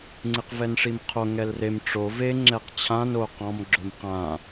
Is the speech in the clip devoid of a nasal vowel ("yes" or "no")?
no